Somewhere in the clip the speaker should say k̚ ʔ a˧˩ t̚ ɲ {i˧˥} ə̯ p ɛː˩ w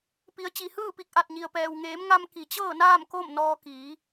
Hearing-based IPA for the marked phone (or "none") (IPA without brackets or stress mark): i˩